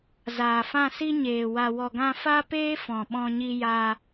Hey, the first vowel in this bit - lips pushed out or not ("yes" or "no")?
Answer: no